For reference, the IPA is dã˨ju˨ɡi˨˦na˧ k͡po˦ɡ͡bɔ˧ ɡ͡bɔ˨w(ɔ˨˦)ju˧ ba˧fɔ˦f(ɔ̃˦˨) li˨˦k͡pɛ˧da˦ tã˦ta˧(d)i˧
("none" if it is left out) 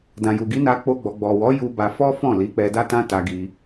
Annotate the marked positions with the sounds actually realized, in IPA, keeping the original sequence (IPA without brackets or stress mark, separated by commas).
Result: ɔ˨˦, ɔ̃˦˨, ɡ